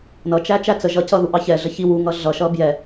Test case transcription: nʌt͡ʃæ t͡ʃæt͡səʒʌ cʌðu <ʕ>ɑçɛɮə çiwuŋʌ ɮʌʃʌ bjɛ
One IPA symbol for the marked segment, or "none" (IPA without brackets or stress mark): ʔ